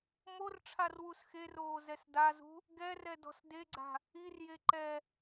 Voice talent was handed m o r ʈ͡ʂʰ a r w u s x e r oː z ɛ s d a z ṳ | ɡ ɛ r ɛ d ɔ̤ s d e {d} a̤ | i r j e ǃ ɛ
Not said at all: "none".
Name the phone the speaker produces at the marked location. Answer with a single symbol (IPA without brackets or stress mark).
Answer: ɡ͡ǀ